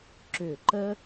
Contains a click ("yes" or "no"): yes